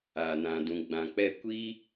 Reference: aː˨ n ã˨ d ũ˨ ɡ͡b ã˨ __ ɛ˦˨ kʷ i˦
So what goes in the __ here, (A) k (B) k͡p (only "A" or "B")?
B